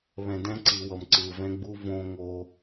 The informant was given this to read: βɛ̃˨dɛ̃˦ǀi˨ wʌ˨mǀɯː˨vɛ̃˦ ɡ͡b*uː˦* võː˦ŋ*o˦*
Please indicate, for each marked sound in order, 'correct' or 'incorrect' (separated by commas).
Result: incorrect, correct